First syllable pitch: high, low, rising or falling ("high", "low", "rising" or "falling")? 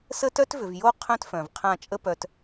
high